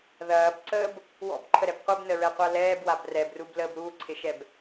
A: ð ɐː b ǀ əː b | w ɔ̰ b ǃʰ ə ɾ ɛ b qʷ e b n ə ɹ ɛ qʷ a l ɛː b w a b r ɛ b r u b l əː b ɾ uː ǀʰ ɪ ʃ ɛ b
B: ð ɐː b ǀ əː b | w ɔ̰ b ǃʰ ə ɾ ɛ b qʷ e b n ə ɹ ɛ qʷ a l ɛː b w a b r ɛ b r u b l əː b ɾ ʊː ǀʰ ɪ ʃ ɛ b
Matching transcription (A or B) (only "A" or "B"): A